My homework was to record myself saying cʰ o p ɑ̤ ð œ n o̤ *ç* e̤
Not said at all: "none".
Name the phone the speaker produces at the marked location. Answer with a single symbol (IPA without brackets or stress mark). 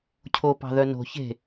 ç